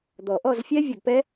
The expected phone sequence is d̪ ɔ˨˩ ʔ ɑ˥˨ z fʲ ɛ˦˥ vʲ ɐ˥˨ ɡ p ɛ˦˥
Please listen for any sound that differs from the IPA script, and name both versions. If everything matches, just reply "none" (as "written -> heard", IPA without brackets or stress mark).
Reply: ɑ˥˨ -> ɔ˥˨